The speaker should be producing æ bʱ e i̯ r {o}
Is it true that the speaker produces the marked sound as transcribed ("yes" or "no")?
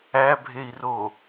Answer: yes